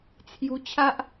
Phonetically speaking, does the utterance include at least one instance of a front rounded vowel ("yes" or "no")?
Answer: no